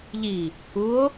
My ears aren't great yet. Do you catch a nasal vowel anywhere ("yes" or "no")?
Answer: no